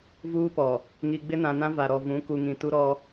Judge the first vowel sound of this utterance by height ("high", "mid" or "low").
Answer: high